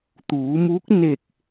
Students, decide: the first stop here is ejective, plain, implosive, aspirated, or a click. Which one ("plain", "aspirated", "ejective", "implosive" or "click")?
plain